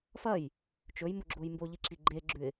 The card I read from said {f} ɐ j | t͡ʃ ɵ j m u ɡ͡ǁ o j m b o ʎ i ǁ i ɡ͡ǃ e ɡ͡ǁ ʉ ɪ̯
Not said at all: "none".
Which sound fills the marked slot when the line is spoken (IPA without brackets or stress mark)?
f